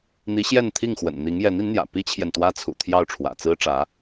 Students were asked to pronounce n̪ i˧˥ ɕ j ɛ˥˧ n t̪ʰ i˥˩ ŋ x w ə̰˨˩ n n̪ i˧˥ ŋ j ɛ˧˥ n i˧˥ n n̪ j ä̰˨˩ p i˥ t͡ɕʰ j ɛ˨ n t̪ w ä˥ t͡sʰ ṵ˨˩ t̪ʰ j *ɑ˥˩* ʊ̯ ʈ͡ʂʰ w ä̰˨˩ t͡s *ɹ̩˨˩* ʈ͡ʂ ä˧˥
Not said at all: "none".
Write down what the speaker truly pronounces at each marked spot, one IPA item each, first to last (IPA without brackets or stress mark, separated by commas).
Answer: ɑ˥˩, ɹ̩˥